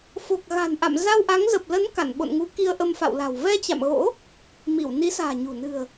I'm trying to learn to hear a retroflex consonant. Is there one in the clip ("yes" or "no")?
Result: no